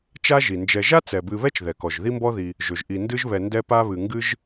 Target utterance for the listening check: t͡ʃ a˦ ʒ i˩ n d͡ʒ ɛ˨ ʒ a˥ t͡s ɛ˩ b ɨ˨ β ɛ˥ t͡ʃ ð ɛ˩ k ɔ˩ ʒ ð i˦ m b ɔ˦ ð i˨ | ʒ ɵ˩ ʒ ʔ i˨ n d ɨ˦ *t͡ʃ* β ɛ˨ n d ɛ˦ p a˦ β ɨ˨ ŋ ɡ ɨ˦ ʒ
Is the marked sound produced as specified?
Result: no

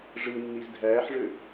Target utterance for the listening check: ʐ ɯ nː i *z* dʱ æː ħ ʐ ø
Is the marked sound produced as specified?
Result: yes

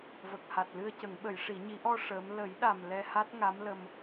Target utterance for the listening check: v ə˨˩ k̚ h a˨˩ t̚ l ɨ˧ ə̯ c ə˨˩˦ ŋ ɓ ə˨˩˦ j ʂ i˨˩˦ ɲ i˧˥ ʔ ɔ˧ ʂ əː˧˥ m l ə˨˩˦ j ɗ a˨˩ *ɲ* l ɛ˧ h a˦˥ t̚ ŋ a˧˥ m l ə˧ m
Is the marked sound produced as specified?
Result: no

